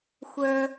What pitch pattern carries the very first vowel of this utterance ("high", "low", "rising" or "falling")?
low